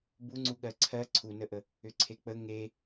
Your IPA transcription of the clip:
b u ŋ͡ǀ u ɠ ɜ ǀʰ ɜ ǀʰ u n ə ʔ ə | ʏ ǀʰ e k͡p ə ŋ e

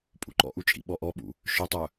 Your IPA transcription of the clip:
pʼ ṵ ǃ ɔ̰ ʔ u t͡ʃʼ ḭ ɓ ɔ ʔ ɔ ɓ ṵ | ʃ œ tˤ œ

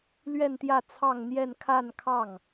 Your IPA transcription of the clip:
l ɥ ɛ˥˧ n t̪ j ä˥˧ t͡sʰ ɑ˥˧ ŋ n̪ j ɛ˥˧ n kʰ a˥˧ n kʰ ɑ˥˩ ŋ

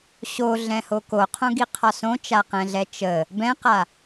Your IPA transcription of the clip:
ɕ o ɮ ɛ̃ h o k o qʰ õ ɡ i qʰ ɒ s õ t͡ʃ a q ɛ̃ ɮ ɛ t͡ʃ ə | b ɛ̃ q a

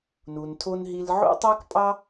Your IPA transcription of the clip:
n u˧ n tʰ o˦ n ɦ i˧ l ʕ o̰˦ tˤ a˦ k pʼ ɑ˦

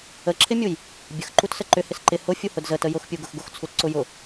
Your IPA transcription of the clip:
ə ǁʰ ɪ mʲ u j | bʲ ə x ǃ u t s ə ǃ ʏ h ɪ s ǃ ɪ h ʊ fʲ u h ʊ d z ə t ə j ʊ x pʲ u ɡ ʊ x ɡ ʊ x t͡sʰ u t ǀ ʊ j ʊ

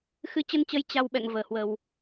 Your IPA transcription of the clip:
x ɨ˨˦ t͡ɕ ə˧ n t͡ɕ ə˨˦ j t͡ɕ a˧ w ɓ ɛ̰˧˨ ŋ v əː˧˩ h w ə˨˩ w

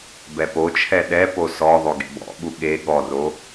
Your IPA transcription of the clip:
b ɛ p o t͡ʃʰ ɛ ɗ ɛ p o s ɔ ðˤ o ɡ ḛ b ɔ̰ ɓ u ɠ e ɠ ɔ r o

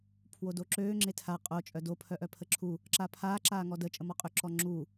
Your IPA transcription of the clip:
pʰ w o d o ǁ øː ŋ͡ǁ e tʰ a qʼ o t͡ʃʼ œ d o pʰ œ ʔ œ pʰ ə ǁʰ u | ǁ a pʰ aː ǁ aː ŋ ɔ d ə t͡ʃʼ ə m ɔ qʼ ø ǁ ɔ ŋ͡ǁ u

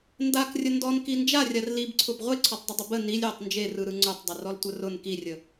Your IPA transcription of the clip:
n d a k rʲ ə n d ɔ n k i n d͡ʒ a rʲ a r l i b ǀʰ ʊ b ʁʷ e ǀʰ ɔ tˤ dˤ ə dˤ ʊ b ə n i lʲ j ə tˤ n d͡ʒ e r ɯ ɾ ɯ ŋ͡ǀ ʊ tˤ dˤ ə r ɔ l tʷ ə r ʊ n k i rʲ ə

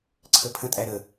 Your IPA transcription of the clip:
ǀʰ ə pʰ ə̃ tʼ æ ɾ ə

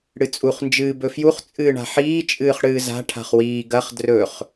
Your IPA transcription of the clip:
ɽ ɨ t͡sʼ u χ n d͡ʒ ɨː b ɵ f j u χ t͡sʼ ɨː ɳ a̤ ħ iː t͡ʃʼ ɨː χ ɽ ɨː z a̤ ʈʰ a̤ χ w iː ɡ ɐ χ d r ɵ χ

